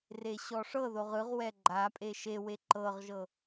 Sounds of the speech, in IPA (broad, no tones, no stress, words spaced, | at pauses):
reɕɔʂɤðoʁ ɯʁwɛ ɡ͡ǃapʼe ʃewe ǃɤʁʒɤ